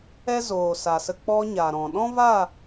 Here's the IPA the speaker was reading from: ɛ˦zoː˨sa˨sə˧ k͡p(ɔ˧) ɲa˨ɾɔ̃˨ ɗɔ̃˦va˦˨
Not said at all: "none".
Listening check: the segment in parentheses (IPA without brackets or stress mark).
ɔ˧